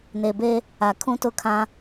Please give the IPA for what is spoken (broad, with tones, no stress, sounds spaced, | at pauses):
n e˨ b e˦ | a˨ kʰ ũ˦ t ʊ˦ kʰ ã˦